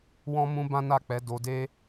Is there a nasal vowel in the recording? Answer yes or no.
yes